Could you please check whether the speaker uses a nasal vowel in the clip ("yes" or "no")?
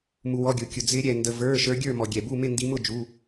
no